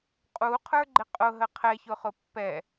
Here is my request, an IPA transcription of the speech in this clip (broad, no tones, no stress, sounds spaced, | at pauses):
qʼ u qʰ ə˞ ɡ͡ǃ ɪ qʼ ʊ ɦ ə qʰ ɛ ç ʊ χ ʊ pː ɛ